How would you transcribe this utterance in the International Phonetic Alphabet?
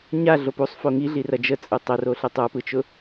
ɲ a ɮ o p u sˤ f o ŋ i ɮ i r ɐ d͡ʒ ə t͡sʼ ɯ tˤ ə r o ɬ ɯ tˤ ə˞ p ɯ t͡ʃ ʊ

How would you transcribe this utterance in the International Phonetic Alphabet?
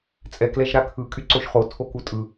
t͡sʼ ɛ k l ɛ ʒ ɾ a kʰ ɯ kʼ y ǀ o ʃ χ o tʰ o k u tʼ ɯ

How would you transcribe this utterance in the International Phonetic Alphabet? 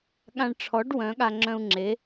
ɠ ã˧ ɳ ʈ͡ʂʰ ɔ˩˥ ɖ w œ̃˩˥ ɠ a˧ ŋ͡ǁ œ̃˧ u̯ ŋ͡ǁ e˩˥

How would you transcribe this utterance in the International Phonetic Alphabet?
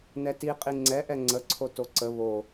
n ɛ t i qʼ i ŋ͡ǀ ɛ ʔ ɛ ŋ͡ǀ ə ǀʰ o t o ǀ ə β o

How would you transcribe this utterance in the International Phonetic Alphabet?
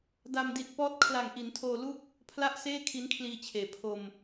d a˧ m d i˨˩ t̚ p ɔː˦˥ t̚ kʰ l a˨˩ ŋ ʔ i˩˦ n tʰ oː˧ l u˥˩ k̚ | pʰ l a˥˩ ʔ s eː˥˩ kʰ i˦˥ n kʰ l iː˧ t͡ɕʰ eː˩˦ pʰ o˧ m

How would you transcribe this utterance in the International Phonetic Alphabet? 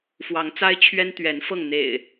f w ɑ˨˦ ŋ t͡s a˦ ɪ̯ t͡ɕʰ ɥ ɛ˦ n t̪ ɥ ɛ˨˦ n f ɤ˥˨ ŋ n̪ ḛ˨˩ ɪ̯

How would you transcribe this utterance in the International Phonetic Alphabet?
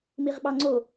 m i ʁ ɓ ɑ ŋ͡ǀ o

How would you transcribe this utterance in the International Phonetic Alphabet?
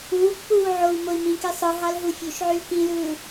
uː k p uː ʕ o w m o i̯ m ĩ k e sˤ ɯ ɦ ɑ l ɦ u fʲ ø ʃ ʕ y l k ĩ l ɯː

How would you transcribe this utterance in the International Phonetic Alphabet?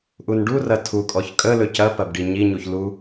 ʔ u n ɖ u r ɐ tʰ u kʼ ɔ ç kʼ ə l ɵ c ɐ p ɐ b ɖ i ɲ i ɲ u ç l u

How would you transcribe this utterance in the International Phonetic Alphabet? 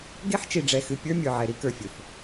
ɡ e˦ ħ t͡ʃ i˨ ɖ͡ʐ ɛ˨ x ɨ˨ pʲ ə˞˦ mʲ ə˞˨ ʕ ɛ˨ ɾ i˦ k ə˞˨ fʲ ɵ˨ f

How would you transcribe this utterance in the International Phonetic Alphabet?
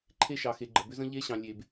ǃʰ e˦ ʃ ɑ˨ x e˨ ɡ͡ǃ ə˨ b ʏ˦ z ə̃˦ ʎ e˦ ɕ ɑ̃˨ lʲ e˨ b

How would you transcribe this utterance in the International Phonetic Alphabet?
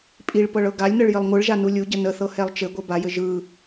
pʼ i ɭ p ɤ ɭ ɤ ɡ a lʲ n ɤ ɭ j ɘ lˠ ŋʷ ɯ ɭ ʒ a n u lʲ u ɟ ə n ə θ ɤ h ɛ lˠ t͡ʃ ɘ ɡʷ ɘ b a j ɘ ʒ ɯ

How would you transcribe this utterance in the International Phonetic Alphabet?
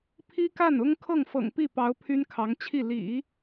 pʰ i˥ k a˥˩ n ʊ˥ ŋ kʰ ɤ˥˩ ŋ f ɤ̰˨˩ ŋ p i˥˩ p ɑ˧˥ ʊ̯ pʰ y˥ n kʰ ɑ˧˥ ŋ t͡ɕʰ i˥˩ l ḭ˨˩˦

